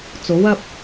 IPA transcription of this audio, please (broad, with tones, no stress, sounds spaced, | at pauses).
t͡s o˨˥ w ɐ˥ p̚